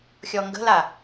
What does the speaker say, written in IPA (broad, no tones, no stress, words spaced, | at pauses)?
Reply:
xʲɔŋɡə̤la